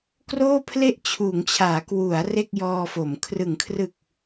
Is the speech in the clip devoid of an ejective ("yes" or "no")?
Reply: yes